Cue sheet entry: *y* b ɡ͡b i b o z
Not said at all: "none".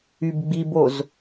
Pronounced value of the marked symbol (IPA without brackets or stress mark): y